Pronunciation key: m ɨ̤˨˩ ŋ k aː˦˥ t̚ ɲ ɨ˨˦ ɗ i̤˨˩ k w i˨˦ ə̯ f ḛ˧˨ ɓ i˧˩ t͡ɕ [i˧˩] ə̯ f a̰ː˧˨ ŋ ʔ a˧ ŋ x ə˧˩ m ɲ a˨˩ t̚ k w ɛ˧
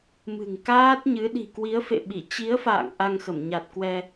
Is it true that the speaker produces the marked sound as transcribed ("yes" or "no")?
no